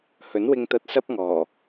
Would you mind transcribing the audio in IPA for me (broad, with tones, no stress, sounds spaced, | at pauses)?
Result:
h ɵ˨˥ n w ɪ˧ ŋ t̪ ɐ˧ t̚ s ɐ˥ p̚ ŋ ɔː˨˩